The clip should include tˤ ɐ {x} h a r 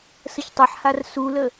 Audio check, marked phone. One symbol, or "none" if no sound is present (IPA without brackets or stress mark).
ħ